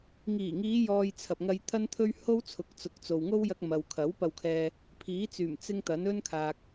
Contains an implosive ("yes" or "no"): no